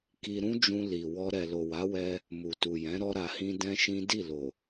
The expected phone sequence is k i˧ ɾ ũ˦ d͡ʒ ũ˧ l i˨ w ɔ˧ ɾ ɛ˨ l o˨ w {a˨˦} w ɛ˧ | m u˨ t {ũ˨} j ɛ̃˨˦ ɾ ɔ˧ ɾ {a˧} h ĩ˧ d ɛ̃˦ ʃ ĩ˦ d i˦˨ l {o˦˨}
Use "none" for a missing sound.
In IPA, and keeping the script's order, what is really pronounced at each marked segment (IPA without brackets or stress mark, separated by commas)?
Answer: a˨˦, u˨, a˨, o˨